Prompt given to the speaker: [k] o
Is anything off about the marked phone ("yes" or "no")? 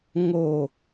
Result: yes